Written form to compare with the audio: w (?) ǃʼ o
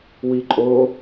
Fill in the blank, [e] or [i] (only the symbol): i